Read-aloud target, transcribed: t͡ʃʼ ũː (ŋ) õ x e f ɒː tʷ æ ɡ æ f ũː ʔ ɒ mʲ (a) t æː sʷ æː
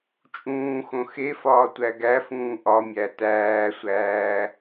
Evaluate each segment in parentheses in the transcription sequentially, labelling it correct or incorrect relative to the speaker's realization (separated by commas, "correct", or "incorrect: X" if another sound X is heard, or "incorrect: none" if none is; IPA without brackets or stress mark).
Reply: incorrect: x, incorrect: æ